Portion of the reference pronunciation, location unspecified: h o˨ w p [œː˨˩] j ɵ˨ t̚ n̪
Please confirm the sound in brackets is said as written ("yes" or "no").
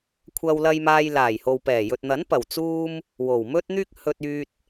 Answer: no